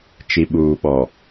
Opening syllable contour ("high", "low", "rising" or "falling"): low